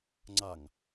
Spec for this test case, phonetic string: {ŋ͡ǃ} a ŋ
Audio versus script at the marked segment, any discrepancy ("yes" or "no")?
yes